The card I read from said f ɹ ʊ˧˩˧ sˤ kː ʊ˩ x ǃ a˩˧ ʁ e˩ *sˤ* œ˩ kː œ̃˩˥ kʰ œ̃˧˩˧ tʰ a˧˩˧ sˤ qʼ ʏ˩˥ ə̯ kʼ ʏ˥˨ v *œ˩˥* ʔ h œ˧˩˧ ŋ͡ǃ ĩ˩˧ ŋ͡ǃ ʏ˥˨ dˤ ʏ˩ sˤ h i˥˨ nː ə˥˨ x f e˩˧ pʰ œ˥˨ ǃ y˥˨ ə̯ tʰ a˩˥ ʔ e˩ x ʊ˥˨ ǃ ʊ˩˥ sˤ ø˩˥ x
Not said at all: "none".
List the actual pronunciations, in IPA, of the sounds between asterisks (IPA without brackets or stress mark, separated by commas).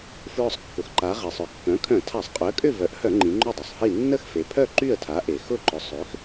sˤ, œ˩˥